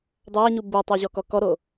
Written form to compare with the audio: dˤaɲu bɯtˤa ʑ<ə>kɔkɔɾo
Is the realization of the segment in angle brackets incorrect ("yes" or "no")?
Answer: yes